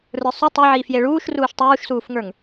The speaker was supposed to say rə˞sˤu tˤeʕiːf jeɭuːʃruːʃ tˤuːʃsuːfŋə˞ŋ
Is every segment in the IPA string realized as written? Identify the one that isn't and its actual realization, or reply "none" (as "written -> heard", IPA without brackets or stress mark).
none